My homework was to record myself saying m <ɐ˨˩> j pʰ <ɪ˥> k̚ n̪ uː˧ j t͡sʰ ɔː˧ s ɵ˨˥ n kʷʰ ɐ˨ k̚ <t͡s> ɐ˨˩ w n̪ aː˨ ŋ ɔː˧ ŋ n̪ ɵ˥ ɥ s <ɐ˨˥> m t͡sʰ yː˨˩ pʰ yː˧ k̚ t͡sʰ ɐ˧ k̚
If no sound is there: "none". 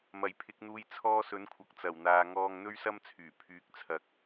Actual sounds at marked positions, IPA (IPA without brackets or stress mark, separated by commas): ɐ˨˩, ɪ˨˥, t͡s, ɐ˥